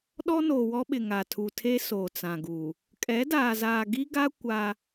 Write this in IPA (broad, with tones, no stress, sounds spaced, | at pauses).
ɗ ɔ˦ n oː˨ w ɔ˦ ɓ ɪ˨ ŋ a˨ tʰ u˨ tʰ e˦ s oː˨ t͡s ã˨ ɡ u˨ | kʼ ɛ˨˦ d aː˨ z aː˨ ɡ i˦ ɡ a˦ kʷ a˦